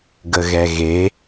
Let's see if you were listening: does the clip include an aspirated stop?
no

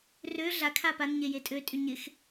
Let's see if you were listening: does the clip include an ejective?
yes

